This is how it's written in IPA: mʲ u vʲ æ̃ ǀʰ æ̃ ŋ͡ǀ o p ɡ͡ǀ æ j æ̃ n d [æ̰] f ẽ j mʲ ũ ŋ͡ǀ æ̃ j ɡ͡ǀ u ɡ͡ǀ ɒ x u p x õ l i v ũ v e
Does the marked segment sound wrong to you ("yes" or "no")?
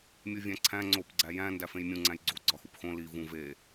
yes